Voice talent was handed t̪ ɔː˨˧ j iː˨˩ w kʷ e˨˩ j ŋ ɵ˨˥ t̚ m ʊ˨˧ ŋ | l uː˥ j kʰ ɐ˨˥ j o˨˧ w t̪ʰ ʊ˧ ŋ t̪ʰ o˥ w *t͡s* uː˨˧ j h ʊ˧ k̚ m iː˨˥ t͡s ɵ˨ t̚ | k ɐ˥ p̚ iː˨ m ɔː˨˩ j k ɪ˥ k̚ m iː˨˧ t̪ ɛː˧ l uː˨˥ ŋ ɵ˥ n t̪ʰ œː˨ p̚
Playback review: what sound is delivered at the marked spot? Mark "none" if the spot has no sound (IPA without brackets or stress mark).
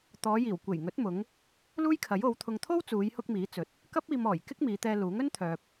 t͡s